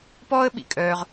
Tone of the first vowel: high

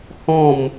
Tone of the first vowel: falling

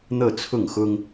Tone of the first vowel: falling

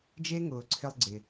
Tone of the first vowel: high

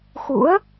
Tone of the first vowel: rising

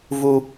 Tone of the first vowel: high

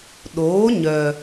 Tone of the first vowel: rising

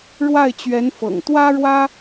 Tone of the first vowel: falling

